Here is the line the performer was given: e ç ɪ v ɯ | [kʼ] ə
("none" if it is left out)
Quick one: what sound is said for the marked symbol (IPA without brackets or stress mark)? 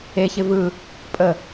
pʼ